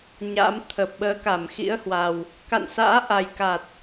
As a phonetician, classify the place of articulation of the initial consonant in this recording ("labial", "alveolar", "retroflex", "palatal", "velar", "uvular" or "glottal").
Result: palatal